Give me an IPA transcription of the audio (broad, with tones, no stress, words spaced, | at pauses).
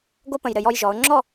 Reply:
ɡo˥pə̃˧˩j ɾɘ˧˩jɔ˧j ʒɔ˩˧ʊ̯ŋ͡ǁɔ˥˧